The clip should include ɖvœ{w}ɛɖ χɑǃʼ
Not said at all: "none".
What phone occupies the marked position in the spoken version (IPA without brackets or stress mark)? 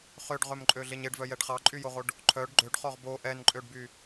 j